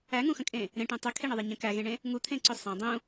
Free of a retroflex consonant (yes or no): no